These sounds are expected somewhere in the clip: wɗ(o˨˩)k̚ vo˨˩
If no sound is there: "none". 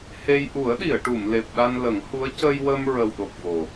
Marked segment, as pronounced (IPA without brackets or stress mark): o˨˩